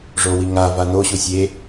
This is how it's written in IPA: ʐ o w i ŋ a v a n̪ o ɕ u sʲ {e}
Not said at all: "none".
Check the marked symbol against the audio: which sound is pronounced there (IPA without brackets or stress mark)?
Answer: e